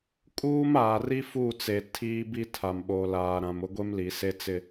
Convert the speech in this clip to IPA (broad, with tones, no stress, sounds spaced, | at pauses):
kʼ uː˦ m aː˨ r i˦ f u˦˨ t͡s e˨ tʰ iː˦ b i˦ tʰ a˨ m ɓ o˨ l aː˨ ɾ ã˨ m ʊ˦ ɡʷ e˦ m l i˨ s e˦ t͡s ɪ˦